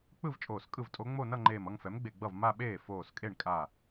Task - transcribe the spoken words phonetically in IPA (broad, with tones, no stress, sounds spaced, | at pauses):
k͡p ɯ˥˧ v t͡ʃʼ oː˧˩ s kʼ ɯ˥˩ v tʼ o˧˥ ŋ͡m o˥˧ n ʌ˥˧ ŋ͡ǃ eː˧˩ m ʌ˥˧ ŋ f ɛ˩˥ m ɡ͡b e˧˩ ɡ͡b ʌ˥˩ v m a˥˧ ɓ eː˥˩ f oː˧˩ s kʼ e˥˩ ɳ kʼ a˧˩